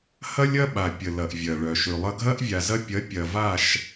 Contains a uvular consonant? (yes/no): no